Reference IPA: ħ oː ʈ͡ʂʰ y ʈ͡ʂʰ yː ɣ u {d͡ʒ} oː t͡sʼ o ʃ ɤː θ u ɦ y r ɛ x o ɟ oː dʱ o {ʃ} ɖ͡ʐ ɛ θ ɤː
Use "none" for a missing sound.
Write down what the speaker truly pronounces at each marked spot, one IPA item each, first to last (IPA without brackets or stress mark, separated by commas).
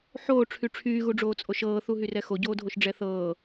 ɖ͡ʐ, ʃ